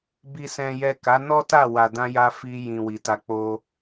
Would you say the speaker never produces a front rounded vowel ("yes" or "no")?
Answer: yes